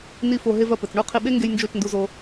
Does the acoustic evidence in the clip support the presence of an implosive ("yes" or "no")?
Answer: yes